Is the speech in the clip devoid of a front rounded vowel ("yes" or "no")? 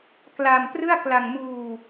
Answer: yes